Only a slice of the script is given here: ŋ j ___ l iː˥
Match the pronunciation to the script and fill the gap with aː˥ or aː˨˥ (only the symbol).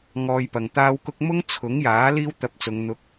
aː˨˥